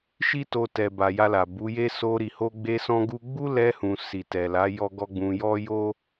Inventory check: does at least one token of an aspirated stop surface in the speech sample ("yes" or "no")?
no